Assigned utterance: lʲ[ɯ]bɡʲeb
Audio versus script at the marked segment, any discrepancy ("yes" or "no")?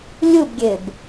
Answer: no